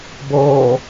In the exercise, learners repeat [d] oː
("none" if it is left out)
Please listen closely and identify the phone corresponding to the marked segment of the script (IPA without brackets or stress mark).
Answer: b